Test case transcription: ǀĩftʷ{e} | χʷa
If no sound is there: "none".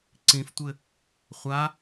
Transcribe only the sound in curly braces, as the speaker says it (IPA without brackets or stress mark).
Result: ɘ